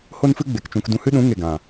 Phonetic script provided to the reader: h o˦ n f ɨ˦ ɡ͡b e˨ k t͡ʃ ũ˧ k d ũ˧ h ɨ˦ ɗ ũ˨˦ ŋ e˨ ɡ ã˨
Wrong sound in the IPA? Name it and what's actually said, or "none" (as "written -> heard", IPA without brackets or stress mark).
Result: none